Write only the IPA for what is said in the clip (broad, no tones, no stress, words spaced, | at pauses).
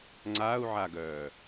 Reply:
ŋ͡ǀaːu̯ʕaɡœː